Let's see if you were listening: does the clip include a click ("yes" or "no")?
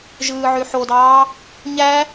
no